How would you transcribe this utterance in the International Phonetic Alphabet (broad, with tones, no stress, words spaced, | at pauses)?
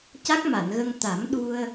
ca˦˥k̚ma˨˩˨nɣə˧ŋ t̪a˨˩˦m ɗu˧ə̯